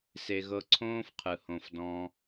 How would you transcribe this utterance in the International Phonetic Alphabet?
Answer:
s e˨ ɣ ɤ˧ ǀʰ õː˦ f qʰ ɯ˨ h õ˧ f d ɔ̃˦

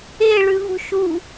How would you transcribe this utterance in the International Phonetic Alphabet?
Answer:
e ɭ ʉ v ṳ ʃ u

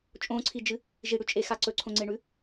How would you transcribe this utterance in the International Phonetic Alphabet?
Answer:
t͡ʃʼ õ ǀʰ i d͡ʒ ɨ | ʒ i ɽ ʉ t͡ʃʼ e x a ǀ ɵ ǀʰ õ ŋ͡ǀ e ɳ ʉ

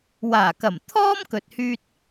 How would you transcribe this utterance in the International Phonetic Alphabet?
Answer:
w aː˨˩ k ɐ˨˩ m t̪ʰ ɔː˥ m k ɵ˧ t̚ h yː˥ t̚

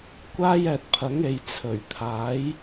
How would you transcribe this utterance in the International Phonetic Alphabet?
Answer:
kʷ aː˥ j ɛː˧ t̚ pʰ ɐ˨˥ ŋ e˨ j t͡sʰ ɵ˨˩ ɥ t̪ʰ aː˨˥ j

